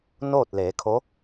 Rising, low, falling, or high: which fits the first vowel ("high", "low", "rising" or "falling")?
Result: falling